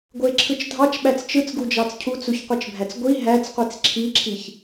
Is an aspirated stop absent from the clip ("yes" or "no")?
no